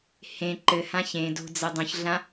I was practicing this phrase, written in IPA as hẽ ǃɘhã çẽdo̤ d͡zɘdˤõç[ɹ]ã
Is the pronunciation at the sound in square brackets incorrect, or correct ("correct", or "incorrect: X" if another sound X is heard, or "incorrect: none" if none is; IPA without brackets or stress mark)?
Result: incorrect: ɮ